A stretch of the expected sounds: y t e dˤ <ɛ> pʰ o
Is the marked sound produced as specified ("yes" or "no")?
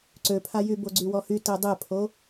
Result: yes